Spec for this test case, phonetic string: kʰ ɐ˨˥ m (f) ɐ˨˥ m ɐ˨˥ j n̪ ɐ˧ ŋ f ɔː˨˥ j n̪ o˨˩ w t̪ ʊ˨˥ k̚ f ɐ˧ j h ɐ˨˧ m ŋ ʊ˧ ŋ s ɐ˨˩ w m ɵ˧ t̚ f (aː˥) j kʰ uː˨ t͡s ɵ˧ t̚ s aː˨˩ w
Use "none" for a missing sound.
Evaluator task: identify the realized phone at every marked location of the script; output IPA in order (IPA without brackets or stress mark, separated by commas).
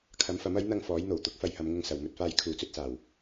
f, aː˧